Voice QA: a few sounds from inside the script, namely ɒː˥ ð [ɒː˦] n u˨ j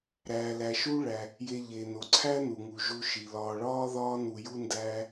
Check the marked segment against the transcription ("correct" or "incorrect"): correct